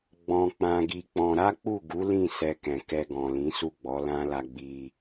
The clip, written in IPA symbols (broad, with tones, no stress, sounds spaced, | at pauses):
ɡ͡b ɔ̃˧ k͡p ã˧ ɡ i˧ k͡p ɔ̃˧ ɾ a˦ k͡p u˦˨ ɡ u˨˦ l ĩ˦˨ s ɛ˧ k ɛ̃˨ k ɛ˧ ɡ ɔ̃˨ l ĩ˨˦ s u˦˨ ɡ͡b ɔ˨˦ l ã˦ l a˧ ɡ͡b i˧